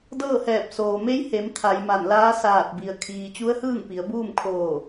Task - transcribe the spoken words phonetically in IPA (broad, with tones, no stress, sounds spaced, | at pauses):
d ɤː˥˨ h ɛː˧˩ p̚ s oː˩ m e˧˥ j h e˩˧ m t̪ʰ a˩˧ j m a˧˩ n l aː˧˥ s aː˧˩ t̚ b i˩ ə̯ kʰ iː˩ t͡ɕ u˧˥ ə̯ h ɯː˥˨ ŋ p i˩˧ ə̯ b uː˥˨ m kʰ oː˧˩